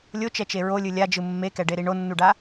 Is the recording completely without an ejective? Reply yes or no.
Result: yes